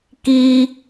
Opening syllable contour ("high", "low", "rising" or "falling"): high